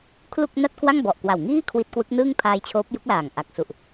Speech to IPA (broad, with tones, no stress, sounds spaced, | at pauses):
kʰ l u˥˩ k̚ n a˥˩ t̚ k w a˥˩ ŋ b ɔ˨˩ ʔ k w a˨˩ w ŋ iː˥˩ kʰ w i˦˥ t̚ k w ɯ˦˥ k̚ n ɯː˥˩ ŋ pʰ aː˧ j t͡ɕʰ oː˦˥ p̚ j u˦˥ k̚ l aː˨˩ ŋ ʔ a˨˩ k̚ s u˨˩ ʔ